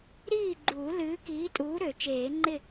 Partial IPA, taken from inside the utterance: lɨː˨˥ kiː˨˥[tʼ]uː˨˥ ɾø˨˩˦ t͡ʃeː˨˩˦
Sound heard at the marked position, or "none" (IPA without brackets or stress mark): tʼ